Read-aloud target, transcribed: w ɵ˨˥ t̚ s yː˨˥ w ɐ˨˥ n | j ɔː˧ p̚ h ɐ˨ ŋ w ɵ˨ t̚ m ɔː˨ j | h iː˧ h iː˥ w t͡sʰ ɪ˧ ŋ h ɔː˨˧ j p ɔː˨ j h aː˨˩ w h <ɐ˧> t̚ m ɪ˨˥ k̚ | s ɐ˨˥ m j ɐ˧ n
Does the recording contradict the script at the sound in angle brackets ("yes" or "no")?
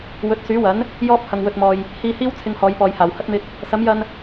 no